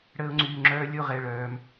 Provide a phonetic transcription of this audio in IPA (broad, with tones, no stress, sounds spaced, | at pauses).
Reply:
ɽ əː˧ ʊ̯ ŋ͡ǀ yː˩ ŋ͡ǁ œː˧ lʲ o˥˩ ʁ ɛ˥˩ ɭ œː˩ m